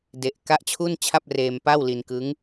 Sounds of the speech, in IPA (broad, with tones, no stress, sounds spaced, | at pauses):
d e˨˩ ʔ k a˦˥ ʔ t͡ɕʰ u˥˩ n t͡ɕʰ a˥˩ p̚ r eː˧ m p a˥˩ w l i˧ n k ɯ˦˥ ŋ